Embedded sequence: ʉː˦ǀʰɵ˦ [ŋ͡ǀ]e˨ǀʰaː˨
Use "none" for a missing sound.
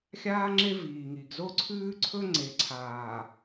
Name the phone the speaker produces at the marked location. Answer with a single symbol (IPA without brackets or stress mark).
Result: ŋ͡ǀ